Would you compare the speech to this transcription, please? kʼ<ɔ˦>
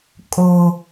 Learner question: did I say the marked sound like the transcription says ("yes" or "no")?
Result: no